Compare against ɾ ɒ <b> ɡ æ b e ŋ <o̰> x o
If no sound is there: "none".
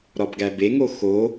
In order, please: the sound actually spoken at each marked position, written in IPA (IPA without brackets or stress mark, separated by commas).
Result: b, o